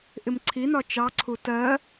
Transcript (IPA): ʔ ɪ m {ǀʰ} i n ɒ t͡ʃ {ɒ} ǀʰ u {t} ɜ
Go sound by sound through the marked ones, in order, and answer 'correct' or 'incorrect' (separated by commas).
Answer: correct, incorrect, correct